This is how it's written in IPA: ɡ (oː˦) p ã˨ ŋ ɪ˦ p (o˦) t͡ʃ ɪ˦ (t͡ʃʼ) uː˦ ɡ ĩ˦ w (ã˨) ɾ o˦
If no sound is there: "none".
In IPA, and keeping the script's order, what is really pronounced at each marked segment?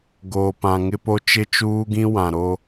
oː˨, o˦, t͡ʃ, ã˨

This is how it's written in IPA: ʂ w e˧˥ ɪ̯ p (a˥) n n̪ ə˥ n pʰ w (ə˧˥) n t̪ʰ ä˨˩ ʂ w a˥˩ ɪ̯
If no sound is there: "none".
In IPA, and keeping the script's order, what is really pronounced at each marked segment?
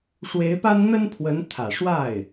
a˥, ə˧˥

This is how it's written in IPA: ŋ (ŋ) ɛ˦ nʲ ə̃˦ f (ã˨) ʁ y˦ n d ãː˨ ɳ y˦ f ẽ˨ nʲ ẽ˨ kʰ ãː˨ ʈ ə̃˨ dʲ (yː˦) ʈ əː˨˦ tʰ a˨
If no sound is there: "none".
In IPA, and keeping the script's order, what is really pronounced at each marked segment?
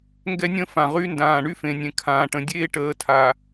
ɡ, ã˨, eː˦

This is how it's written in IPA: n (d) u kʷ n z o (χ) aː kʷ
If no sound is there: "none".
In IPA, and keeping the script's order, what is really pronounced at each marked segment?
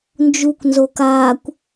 d͡ʒ, k

